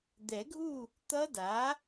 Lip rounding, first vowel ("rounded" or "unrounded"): unrounded